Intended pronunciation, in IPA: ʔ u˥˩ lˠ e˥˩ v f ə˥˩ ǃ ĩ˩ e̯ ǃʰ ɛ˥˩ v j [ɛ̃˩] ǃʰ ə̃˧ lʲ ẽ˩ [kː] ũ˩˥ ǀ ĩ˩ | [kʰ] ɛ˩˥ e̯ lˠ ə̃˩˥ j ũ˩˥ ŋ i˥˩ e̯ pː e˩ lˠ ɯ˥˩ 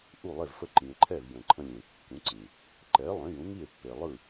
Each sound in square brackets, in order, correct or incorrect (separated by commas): incorrect, correct, incorrect